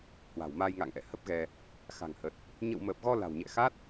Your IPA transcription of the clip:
h w a̤˨˩ w m aː˧ j ŋ a̰ː˧˨ ŋ ʔ ɛ̰˧˨ h ə˦˥ p̚ ɣ ɛ˧ | x a̤˨˩ ŋ h ə˨˩ t̚ | ɲ ə̰˧˨ w m əː˨˩ p̚ ɣ ɔ˧ l a̤˨˩ w ɲ ɛ̰˧˨ x a˦˥ t̚

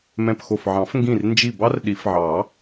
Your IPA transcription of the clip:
m ɛ̃˧˩ p x o˧˩ f ʕ ɑ̃˨˩˦ f ŋ ɡ ĩ˧˩ r n d͡ʒ i˧˩ b ɑ˥ r ɗ i˨˩˦ f ʕ ɑ˨˩˦

